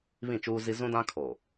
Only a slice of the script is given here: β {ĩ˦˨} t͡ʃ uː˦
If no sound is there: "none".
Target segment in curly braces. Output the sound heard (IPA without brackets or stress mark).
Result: ĩ˦˨